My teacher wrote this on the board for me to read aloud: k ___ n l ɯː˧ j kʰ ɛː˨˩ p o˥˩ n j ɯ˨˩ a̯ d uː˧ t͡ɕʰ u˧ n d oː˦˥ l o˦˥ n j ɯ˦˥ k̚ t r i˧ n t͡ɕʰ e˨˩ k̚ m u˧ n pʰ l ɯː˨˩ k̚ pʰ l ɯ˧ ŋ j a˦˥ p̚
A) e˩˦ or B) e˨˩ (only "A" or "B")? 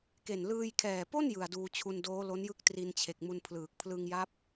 B